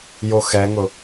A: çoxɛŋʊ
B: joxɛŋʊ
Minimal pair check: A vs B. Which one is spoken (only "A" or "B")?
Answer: B